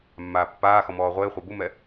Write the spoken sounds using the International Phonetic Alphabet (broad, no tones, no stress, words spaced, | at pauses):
mːaːpːaːxɔ mɔːʁʷɪːχʷa bumɛ